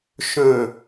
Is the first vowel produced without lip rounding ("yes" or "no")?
no